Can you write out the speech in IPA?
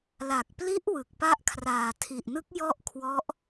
la˨˩k̚pli˦˥ʔ wɯ˨˩k̚pa˦˥ʔkʰraː˨˩ tʰi˨˩ʔnɯ˦˥k̚ jɔ˥˩ʔ kʰwɔ˦˥ʔ

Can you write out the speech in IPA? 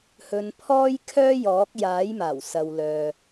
hɵ˧npʰɔː˥jkʰœː˥ jɔː˨˥k̚jaː˨˥jmaː˨˩w sɐ˨wlœː˨

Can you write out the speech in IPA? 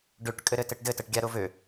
ɖøʈ kʼɘɾɘtɘʈdɘ təʈɡʲaɾovø

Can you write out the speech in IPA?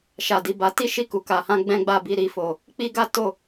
ʃa˨di˨ba˨˦ ti˦ ʃi˦˨ku˨ka˨hã˧ ɡ͡bɛ̃˦ɡ͡ba˦˨bi˧ ɾi˨fo˨ | k͡pi˦ɡa˦ to˦˨

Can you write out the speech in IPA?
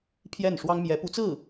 pʰjɛ˥˩nʂwɑ˥ŋ mjɛ˧˥pu˧˥t͡sɹ̩˥˩

